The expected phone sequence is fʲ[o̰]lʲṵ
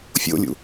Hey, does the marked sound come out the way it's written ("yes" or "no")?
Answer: yes